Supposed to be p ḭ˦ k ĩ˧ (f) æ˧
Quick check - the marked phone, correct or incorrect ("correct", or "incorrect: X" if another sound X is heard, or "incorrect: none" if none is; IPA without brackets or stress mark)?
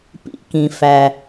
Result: correct